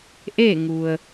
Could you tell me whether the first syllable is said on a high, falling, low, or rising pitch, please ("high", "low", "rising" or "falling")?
falling